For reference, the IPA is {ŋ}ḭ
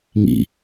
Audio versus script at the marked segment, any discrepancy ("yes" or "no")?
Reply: no